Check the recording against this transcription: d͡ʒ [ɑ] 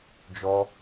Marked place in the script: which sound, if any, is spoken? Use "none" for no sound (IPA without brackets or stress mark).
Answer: ɔ